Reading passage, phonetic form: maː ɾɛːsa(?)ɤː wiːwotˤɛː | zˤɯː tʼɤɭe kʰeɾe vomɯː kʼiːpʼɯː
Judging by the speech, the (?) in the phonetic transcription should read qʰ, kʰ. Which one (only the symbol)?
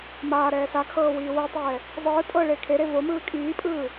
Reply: kʰ